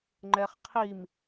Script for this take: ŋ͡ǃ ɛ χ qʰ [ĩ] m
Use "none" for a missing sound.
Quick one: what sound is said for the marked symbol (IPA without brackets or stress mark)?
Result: i